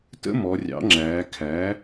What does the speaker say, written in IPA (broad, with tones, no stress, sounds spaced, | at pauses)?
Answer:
t ə̰˦˥ m ɔ˩˧ rʲ ɑ̰˩˥ ŋ͡ǁ æː˩˧ kʰ æ˩˥